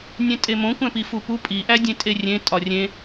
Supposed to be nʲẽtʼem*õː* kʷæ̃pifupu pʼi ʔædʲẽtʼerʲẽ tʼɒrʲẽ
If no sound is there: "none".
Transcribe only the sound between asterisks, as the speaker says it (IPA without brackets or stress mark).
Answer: õ